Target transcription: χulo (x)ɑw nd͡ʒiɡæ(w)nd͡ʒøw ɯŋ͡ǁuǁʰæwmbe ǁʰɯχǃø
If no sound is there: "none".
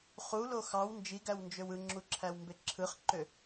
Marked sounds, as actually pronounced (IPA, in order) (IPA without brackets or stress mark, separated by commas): x, w